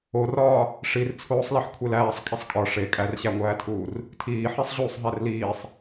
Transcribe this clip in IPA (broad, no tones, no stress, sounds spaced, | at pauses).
o r ɒː | ʂ i r t͡sʰ oː sˤ l i ħ kʷʰ e l æː sˤ kʼ i sˤ kʼ ɒ ʂ e kʼ æ r ɕ æ ŋʷ æː tʰ uː r | tʰ iː ħ i sˤ ʑ uː sˤ ɦ æ r l iː sˤ